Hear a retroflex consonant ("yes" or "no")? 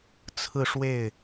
yes